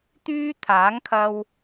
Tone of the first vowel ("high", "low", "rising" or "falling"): high